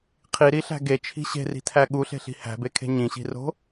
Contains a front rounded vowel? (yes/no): no